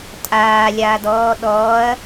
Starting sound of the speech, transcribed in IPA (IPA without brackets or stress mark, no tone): tʼ